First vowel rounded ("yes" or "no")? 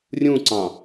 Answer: yes